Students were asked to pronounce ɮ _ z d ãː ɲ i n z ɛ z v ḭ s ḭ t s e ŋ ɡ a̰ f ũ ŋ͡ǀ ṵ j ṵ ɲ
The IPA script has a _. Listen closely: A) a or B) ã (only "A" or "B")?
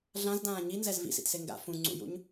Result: B